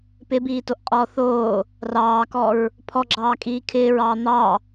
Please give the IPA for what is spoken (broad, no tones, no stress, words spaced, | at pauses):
pɪbiːtoʔqʼɔː θoː | rɑːkɔɹ | pʰɔɡ͡ǁɑːkʼiː kʰɪːɹɑː n̪ɑ